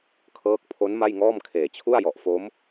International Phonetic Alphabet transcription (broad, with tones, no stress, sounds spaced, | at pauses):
kʰ ɤː˦˥ k̚ pʰ o˦˥ n m a˥˩ j ŋ ɔː˥˩ m kʰ eː˨˩ t͡ɕʰ u˥˩ a̯ j ɔ˨˩ ʔ f o˦˥ m